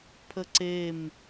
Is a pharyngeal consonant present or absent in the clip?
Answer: absent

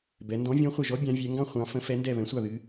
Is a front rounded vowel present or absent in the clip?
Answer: absent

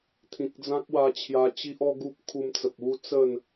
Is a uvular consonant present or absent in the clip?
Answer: absent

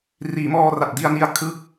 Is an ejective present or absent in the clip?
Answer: absent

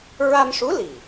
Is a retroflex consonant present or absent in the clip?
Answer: present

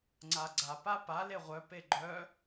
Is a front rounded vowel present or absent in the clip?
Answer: present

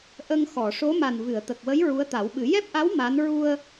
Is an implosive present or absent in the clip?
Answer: present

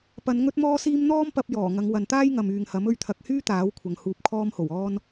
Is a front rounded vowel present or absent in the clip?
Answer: present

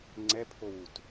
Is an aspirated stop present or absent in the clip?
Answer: present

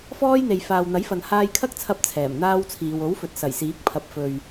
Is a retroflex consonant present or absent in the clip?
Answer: absent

